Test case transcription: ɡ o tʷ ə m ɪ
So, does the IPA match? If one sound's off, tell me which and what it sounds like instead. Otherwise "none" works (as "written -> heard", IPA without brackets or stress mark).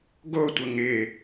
m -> ŋ